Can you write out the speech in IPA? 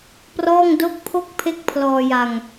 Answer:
p r ɔː˥˩ ŋ d o˦˥ k̚ pʰ o˥˩ k̚ pʰ e˦˥ k̚ pʰ l ɔː˧ j a˧ ŋ

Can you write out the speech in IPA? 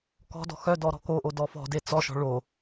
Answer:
k ɔ̤ d ɔ̤ x œ d ɔ ɾ ɔ̤ k o ʔ o d ɔ f ɔ̤ d e t͡s ɔ ʃ ɔ̤ ɭ o

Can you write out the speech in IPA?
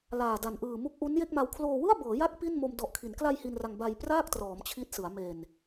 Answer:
l aː˨˩ d a˨˩ n ʔ ɯː˨˩ m u˦˥ k̚ ʔ u˦˥ n j e˥˩ k̚ m a˧ w kʰ l oː˧ w ɯ˥˩ a̯ b ɤː˩˦ j a˦˥ k̚ p i˥˩ n m o˧ m d ɔ˨˩ ʔ kʰ i˩˦ n k l a˧ j h i˧ n r a˧ ŋ b a˧ j p r aː˥˩ k̚ t r ɔː˩˦ m t͡ɕʰ i˦˥ t̚ s ɯ˩˦ a̯ m e˨˩ n

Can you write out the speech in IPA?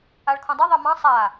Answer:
a ɭ kʰ õ dˤ a ðˤ ɛ m ɑ̃ sˤ a

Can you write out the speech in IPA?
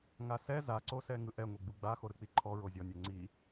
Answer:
ŋ a s ɛ z a ǀ o s ɛ ŋ ɯ ʔ ɛ ŋʷ e ɡ͡b u ɡ͡b a x o ɾ ɯ k͡p i ǃʰ ɔ ɹ o zʲ ɔ nʲ ɛ ŋ͡ǀ i

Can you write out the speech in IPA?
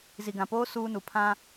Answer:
z i˨ ɡ ã˨ p oː˦ s uː˦ n u˨ pʰ ã˦

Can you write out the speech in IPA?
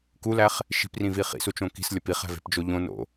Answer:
k u l æ χ | ʃ i̤ p r ĩ v i χ ḭ s u t͡ʃ õ k i̤ s lʲ ɒ p i χ æ̤ v e̤ p d͡ʒ o ʎ õ n o̰

